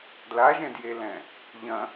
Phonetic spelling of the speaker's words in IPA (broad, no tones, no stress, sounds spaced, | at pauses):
d l a ʒ ɛ̃ d j e l ɛ̃ | ʎ ɐ̃